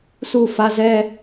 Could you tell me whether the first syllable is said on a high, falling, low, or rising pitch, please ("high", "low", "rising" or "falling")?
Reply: falling